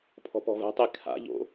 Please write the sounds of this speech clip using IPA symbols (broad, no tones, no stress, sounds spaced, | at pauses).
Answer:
pʰ ɔ̤ p ɔ̤ v ɛ̤ tˤ i kʰ a̰ ʎ o̰